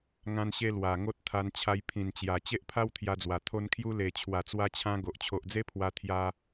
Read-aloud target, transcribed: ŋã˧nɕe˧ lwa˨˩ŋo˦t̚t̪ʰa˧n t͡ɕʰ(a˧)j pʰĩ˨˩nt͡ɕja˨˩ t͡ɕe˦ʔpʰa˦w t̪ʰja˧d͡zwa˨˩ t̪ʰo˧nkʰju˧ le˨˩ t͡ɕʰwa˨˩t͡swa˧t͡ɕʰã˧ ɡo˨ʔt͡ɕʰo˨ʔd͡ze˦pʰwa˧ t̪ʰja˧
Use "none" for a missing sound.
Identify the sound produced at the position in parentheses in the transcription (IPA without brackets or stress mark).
a˧